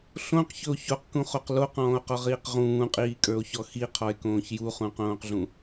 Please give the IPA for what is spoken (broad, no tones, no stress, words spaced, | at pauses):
ɬõqçɵo̯ çoqkũχoq loqɔ̃ːo̯qɔʁiːq ʁũːqʼiːkʼə˞o̯çɔ xiqʰɔe̯kõːç juχũqõːqɮũ